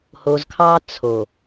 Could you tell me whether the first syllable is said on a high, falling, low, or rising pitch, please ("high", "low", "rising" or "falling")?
low